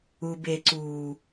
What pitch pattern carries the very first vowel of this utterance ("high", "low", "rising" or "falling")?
low